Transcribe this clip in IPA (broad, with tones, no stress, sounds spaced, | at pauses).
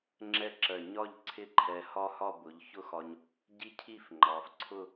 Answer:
ŋ͡ǁ ɛ˥ ǁ ɜ˧˩ ɲ ɒ˥˧ ʎ ǀʰ ɪ˥ ǃʰ ɛ˧ h ɒ˥ h ɒ˥˧ b ʊ˩˧ ʎ ç ʊ˥˧ x ɒ˧ ɲ | ɟ i˥˧ cʰ i˥˧ f ŋ͡ǃ ɑ˩˧ f ǀʰ ʊ˥˧